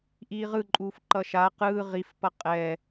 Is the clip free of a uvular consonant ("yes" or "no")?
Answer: no